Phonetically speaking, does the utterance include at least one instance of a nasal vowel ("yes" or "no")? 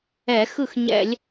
no